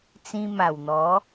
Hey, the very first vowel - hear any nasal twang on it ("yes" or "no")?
yes